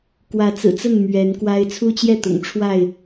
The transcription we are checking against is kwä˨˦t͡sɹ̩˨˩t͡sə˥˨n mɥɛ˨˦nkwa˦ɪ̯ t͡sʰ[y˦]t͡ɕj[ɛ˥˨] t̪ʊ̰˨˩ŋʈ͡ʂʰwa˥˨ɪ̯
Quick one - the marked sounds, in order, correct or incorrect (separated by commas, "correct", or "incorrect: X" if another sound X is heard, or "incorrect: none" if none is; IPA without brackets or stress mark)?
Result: incorrect: u˦, correct